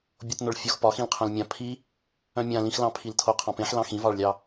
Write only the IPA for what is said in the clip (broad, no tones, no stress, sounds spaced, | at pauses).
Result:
bʲ o t n o ɭ fʲ o x p ɒ x ĩ l qʰ œ̃ l mʲ ã pʰ i | œ̃ mʲ ã l ĩ x l ɑ̃ pʰ i l tʰ o qʰ ɑ̃ p ẽ ħ l ɑ̃ x ĩ v ɑ ɭ lʲ ɑ